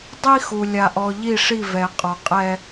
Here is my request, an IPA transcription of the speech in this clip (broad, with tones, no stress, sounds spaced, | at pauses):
dˤ i˦ x u˨ lʲ a˨ ʔ ɔ˨ ʎ i˦˨ ʂ i˦˨ v ɛ˨ qʼ ɔ˨ qʼ ɛ˦